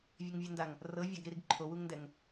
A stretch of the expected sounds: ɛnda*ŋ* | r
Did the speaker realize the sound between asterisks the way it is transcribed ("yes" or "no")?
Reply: yes